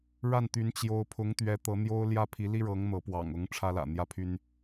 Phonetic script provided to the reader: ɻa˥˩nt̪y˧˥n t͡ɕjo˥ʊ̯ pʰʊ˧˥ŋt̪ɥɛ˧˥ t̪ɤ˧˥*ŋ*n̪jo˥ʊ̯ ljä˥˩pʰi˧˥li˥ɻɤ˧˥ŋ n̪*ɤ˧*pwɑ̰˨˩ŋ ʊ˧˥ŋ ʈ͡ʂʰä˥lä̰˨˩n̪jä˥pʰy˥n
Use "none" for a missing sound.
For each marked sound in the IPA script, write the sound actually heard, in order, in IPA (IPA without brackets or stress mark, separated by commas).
none, ɤ˧˥